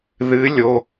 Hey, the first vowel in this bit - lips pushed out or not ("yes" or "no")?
no